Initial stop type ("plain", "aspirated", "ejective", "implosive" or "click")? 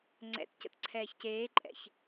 click